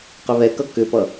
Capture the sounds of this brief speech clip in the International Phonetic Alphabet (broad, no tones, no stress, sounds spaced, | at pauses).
q ʏ β ɛ k ʌ k ʏ p ʌ